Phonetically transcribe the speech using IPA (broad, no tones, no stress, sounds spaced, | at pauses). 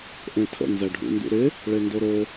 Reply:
ʔ ẽ tʰ ə̰ n z ɛ ɖʱ ṵ n d ṵ ɾ ɪ | ɭ e n d o ɾ o